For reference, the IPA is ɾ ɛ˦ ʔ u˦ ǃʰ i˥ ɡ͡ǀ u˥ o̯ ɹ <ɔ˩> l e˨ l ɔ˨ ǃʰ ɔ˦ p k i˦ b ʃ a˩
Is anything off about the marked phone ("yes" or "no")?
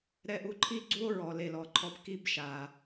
yes